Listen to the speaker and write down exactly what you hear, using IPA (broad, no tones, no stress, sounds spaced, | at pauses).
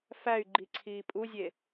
f æ y̯ ɡ͡ǃ i ǀʰ iː pʼ u zʲ e